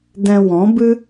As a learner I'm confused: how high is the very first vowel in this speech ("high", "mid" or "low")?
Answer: mid